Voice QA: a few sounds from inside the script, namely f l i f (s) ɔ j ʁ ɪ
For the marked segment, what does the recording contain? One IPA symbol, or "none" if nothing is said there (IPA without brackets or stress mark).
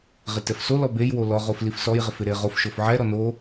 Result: s